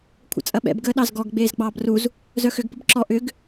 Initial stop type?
aspirated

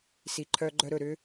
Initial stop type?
click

